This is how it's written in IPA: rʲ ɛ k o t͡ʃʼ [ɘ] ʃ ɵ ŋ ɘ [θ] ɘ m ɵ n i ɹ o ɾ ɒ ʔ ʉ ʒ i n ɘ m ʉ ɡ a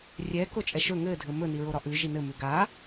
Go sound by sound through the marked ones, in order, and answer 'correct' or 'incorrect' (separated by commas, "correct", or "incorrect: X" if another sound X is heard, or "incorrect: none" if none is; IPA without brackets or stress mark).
incorrect: ɛ, incorrect: dʱ